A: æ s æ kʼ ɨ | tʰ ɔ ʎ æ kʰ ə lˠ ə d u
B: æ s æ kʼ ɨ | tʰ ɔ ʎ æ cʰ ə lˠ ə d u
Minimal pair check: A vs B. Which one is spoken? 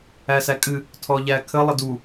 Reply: A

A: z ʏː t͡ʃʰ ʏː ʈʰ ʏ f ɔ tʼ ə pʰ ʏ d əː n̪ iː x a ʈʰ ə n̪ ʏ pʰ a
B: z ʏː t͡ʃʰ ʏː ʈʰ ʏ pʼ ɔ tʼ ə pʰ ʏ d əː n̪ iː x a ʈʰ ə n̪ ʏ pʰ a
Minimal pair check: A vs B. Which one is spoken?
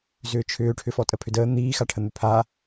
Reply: A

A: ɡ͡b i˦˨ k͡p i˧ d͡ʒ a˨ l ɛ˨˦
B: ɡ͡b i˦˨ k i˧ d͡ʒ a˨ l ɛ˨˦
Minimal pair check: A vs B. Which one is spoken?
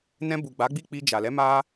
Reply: A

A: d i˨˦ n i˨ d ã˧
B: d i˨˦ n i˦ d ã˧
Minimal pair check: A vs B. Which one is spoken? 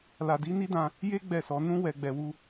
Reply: B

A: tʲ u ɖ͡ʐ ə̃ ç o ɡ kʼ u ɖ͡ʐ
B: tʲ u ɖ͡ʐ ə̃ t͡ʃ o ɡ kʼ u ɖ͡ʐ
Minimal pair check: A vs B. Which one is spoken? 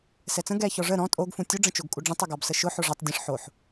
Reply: B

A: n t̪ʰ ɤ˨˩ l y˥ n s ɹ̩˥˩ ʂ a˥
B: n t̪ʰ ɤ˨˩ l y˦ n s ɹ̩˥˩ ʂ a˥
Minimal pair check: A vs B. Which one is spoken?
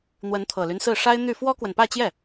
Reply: B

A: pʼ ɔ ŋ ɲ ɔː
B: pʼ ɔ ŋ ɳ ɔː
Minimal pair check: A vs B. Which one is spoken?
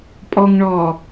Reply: B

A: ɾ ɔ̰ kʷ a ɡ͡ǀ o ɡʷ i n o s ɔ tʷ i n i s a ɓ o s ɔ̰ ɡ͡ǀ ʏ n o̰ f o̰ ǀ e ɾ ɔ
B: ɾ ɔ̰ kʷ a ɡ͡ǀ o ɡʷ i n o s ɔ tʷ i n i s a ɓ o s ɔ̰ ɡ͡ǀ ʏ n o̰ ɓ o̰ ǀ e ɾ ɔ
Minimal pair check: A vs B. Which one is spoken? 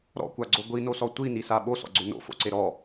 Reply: A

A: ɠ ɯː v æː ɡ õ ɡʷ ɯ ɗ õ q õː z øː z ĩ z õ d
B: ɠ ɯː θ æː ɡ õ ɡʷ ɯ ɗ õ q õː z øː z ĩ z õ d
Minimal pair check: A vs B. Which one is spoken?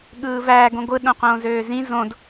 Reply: A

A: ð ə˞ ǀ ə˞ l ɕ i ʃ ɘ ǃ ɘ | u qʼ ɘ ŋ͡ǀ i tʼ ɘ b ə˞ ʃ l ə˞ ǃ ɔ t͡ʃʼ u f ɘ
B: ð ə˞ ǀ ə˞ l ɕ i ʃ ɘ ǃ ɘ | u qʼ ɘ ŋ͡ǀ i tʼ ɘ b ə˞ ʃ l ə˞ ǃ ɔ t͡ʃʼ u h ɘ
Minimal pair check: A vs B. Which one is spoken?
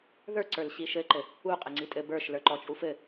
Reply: A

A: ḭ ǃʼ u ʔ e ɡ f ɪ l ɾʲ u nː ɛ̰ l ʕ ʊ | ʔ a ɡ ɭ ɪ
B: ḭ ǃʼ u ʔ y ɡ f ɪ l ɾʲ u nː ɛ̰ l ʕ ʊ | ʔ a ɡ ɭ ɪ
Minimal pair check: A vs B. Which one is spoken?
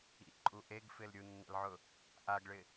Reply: A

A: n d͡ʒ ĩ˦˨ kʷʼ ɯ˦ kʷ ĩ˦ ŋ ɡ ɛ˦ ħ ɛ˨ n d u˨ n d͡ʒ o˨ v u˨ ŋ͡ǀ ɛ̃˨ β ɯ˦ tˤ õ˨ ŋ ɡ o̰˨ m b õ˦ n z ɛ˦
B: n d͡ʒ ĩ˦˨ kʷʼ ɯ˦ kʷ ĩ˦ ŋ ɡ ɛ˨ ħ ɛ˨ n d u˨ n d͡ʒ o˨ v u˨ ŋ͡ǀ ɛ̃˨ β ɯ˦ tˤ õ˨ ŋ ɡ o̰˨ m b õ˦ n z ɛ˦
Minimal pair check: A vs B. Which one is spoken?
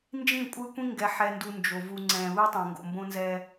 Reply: B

